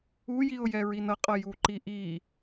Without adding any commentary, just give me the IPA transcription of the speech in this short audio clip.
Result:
ujiʊ̯jɛ ɹinʌqʼʌ juǃiʔi

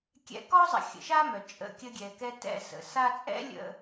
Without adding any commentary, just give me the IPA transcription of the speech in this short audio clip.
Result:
kʲɛ̰˧kɔ˦zˤə̰˨˦ xʲə̰˨ʃa˦mœ˨ t͡ʃʼə̰˧kʲə˧ɡʲɛ˨kɛ˧ tɛ̰˦sə̰˧sa˦ t͡sʼɛ̰˦ lʲə̰˦

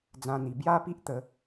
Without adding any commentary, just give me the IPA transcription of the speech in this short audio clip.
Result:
d͡zã˧n̪i˨˩ bja˦pi˦ʔ t̪ə˨˦

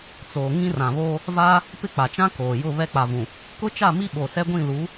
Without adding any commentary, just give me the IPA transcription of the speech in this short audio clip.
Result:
t͡soː˨ ŋĩ˦rã˨βoː˦ | vaː˦ | pɪ˦˨k͡pa˨t͡ʃã˦ koː˨jʊ˦˨ βɛ˦k͡pa˨vũ˨ | kʊ˦t͡ʃa˦˨mi˦ ɓo˨sɛ˦ɡʷĩ˦˨ lu˨˦

